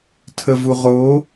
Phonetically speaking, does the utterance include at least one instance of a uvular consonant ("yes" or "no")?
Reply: yes